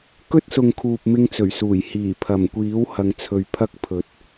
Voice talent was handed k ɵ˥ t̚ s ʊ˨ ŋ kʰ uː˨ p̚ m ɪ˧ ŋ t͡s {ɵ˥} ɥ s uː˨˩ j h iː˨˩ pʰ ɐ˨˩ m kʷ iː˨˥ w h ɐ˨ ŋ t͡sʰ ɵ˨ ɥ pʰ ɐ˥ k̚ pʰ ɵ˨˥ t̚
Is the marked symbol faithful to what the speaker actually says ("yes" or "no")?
no